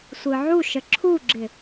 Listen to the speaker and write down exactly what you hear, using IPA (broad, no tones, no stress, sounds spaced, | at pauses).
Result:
sʷ ɯ ʕ u ʃ ə ǁʰ u ɡ͡ǁ ɪ